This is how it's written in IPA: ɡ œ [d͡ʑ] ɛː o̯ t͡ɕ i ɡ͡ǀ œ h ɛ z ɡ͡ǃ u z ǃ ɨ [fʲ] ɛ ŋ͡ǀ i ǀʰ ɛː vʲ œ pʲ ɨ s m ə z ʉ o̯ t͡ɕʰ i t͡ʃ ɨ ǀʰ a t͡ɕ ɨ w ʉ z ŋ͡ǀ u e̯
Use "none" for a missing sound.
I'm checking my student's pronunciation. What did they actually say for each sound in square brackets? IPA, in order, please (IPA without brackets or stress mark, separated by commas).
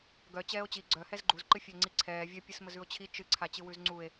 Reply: t͡ɕ, fʲ